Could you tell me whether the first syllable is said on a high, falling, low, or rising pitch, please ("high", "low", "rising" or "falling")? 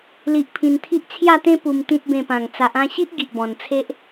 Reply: low